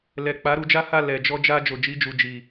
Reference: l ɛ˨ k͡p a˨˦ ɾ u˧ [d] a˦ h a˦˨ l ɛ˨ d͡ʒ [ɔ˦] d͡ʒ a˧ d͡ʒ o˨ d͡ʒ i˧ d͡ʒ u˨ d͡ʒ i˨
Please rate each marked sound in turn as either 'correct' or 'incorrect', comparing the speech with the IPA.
incorrect, incorrect

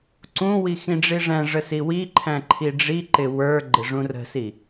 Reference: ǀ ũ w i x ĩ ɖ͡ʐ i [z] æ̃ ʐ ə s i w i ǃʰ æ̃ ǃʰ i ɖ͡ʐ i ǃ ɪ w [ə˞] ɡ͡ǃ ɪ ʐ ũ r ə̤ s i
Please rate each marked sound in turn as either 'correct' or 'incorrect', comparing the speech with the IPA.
incorrect, correct

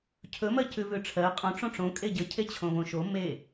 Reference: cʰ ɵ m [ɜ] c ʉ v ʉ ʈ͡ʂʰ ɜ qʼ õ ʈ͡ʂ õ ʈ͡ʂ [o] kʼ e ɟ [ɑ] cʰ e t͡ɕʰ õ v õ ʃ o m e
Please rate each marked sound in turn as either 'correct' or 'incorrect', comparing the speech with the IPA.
correct, incorrect, incorrect

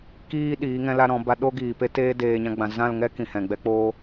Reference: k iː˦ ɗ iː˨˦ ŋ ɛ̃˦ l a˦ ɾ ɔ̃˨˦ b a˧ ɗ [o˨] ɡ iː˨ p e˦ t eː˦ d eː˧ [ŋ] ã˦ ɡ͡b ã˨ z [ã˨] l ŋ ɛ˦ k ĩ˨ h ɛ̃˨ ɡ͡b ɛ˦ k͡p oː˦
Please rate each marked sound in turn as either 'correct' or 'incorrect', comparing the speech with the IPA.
incorrect, incorrect, incorrect

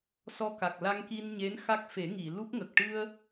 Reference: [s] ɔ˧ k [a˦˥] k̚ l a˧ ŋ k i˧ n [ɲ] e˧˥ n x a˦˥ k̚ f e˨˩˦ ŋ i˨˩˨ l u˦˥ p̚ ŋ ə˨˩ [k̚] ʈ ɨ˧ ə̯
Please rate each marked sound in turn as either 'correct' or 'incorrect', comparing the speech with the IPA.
correct, incorrect, correct, correct

